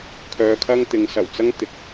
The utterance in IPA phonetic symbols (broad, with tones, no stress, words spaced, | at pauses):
kʰœː˧kʰɐ˥ŋ t̪ɪ˨˧ŋsɐ˨˩wt͡sɐ˥ŋ t̪ɪ˨˥k̚